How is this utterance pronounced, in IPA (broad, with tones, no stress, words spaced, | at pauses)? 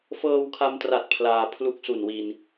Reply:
fɤː˧wkʰa˧mtra˨˩t̚ pʰlaː˧ pʰlu˦˥k̚su˨˩nwi˧n